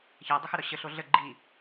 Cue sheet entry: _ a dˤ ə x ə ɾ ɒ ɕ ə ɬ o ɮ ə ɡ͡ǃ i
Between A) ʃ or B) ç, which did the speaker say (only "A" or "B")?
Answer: B